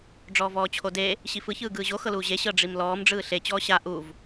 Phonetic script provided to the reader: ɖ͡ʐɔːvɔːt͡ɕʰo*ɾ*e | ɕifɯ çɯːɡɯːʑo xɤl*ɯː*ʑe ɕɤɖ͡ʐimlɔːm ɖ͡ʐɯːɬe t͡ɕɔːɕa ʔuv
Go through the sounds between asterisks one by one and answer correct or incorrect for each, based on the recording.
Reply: incorrect: d, incorrect: uː

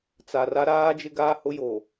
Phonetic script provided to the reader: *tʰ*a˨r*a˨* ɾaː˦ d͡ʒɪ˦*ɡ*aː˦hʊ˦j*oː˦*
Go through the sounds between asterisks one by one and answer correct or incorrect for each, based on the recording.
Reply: incorrect: t͡s, incorrect: a˦, correct, incorrect: oː˨

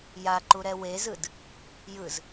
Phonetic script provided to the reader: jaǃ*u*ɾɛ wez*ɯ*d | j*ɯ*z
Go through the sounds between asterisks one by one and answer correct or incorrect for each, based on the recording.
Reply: correct, correct, correct

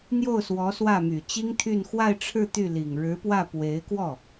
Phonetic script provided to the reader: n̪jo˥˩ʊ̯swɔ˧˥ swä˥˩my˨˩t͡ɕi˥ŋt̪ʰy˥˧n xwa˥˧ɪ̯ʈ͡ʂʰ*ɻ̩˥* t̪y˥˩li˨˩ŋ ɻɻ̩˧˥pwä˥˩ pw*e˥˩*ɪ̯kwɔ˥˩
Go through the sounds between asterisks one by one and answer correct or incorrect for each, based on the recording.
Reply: incorrect: ɻ̩˥˧, incorrect: e˧˥

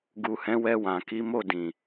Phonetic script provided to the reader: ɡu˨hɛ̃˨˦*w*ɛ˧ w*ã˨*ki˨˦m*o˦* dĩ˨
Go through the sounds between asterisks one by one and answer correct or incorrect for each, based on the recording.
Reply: correct, correct, incorrect: o˦˨

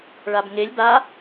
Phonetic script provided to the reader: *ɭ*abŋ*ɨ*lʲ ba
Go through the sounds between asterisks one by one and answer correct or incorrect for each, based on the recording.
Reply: correct, incorrect: e

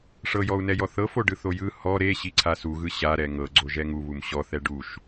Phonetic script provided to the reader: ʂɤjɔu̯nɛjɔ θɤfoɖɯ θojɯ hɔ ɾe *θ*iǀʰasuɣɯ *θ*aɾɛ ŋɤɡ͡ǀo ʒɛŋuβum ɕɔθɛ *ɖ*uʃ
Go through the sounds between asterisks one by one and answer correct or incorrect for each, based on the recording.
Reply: incorrect: ɕ, incorrect: ɕ, correct

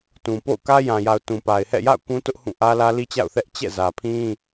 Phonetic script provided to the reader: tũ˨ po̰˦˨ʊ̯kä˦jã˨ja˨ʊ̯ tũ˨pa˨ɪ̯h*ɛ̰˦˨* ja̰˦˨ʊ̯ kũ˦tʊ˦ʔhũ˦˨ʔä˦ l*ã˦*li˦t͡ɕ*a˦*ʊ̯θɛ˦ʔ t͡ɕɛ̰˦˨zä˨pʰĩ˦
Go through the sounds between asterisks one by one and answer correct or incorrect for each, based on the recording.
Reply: correct, incorrect: ä˦, incorrect: a̰˦˨

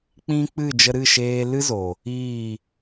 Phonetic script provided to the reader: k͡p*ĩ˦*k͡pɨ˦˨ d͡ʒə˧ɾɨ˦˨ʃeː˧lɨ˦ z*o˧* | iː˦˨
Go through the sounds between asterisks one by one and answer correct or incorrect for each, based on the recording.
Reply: correct, incorrect: o˨

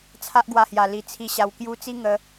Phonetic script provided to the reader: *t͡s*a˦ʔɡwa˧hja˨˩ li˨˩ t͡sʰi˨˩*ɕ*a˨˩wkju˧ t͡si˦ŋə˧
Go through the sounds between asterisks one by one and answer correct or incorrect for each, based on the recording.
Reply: incorrect: t͡sʰ, correct

